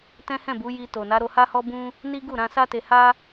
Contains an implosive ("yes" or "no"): no